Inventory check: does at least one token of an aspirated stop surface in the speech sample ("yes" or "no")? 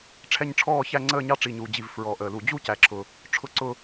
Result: yes